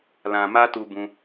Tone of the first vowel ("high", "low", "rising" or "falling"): low